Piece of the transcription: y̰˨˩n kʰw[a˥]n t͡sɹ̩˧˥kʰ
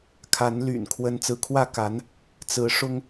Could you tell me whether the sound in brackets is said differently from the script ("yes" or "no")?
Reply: yes